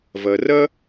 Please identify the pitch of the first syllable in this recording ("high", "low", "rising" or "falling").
low